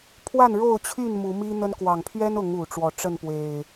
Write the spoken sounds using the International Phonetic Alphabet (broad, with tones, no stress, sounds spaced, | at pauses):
pʰ w a˥˨ n ɻ o˥˨ ʊ̯ t͡ɕʰ y˥˨ n m u˨˦ m i˦ n̪ ə˦ n k w ɑ˨˩ ŋ pʰ ɥ ɛ˦ n ʊ˨˦ ŋ u˨˩ ʈ͡ʂ w ɔ˥˨ ʈ͡ʂ ə˥˨ n p w e˨˩ ɪ̯